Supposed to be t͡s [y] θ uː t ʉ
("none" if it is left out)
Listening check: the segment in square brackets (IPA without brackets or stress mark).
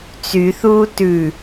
y